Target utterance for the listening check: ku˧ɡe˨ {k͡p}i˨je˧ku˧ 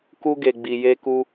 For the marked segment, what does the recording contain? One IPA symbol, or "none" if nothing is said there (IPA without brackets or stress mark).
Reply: ɡ͡b